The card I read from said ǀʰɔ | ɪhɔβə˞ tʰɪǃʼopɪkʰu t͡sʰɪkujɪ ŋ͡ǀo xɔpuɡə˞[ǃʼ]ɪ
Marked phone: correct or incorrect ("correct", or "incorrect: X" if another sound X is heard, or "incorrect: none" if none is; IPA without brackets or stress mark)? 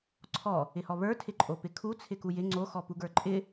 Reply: correct